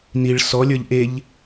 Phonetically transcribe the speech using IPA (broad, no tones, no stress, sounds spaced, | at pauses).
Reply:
n i ɭ s ɔ lʲ ə˞ ʎ ʔ e ʎ